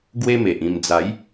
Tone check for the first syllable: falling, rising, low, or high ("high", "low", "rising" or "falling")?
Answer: high